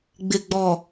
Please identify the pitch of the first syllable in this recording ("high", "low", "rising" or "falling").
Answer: low